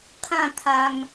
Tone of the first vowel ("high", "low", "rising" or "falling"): falling